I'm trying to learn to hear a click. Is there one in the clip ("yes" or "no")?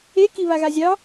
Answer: no